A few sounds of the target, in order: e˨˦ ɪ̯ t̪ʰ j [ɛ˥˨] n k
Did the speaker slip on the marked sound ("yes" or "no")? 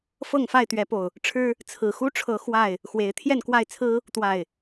no